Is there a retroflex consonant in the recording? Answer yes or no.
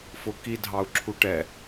yes